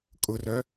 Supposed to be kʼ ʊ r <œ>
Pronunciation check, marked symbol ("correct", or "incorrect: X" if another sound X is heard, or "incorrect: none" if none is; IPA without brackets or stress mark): correct